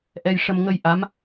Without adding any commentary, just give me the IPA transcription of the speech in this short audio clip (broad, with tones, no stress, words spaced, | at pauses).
ʔɛ˧jʂə˧m ŋə˧j ʔa˧˥m